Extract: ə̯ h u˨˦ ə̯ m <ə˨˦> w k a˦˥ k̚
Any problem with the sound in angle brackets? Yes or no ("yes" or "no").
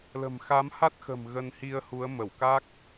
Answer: yes